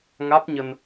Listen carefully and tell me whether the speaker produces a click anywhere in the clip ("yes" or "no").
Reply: no